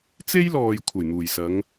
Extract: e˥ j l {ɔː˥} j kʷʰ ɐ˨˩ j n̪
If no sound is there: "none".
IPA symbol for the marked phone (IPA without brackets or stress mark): ɔː˨